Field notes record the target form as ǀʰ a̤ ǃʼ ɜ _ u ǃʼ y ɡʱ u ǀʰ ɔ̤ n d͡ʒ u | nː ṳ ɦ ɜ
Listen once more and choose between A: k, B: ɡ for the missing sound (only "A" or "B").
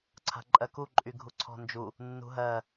A